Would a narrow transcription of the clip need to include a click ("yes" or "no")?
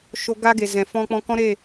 no